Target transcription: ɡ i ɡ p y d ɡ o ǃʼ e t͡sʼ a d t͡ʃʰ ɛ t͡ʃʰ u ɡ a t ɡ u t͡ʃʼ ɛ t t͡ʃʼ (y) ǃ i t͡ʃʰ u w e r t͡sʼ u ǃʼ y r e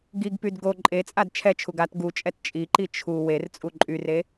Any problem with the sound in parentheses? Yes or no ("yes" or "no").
yes